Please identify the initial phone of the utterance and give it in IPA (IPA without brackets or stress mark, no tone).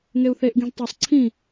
ŋ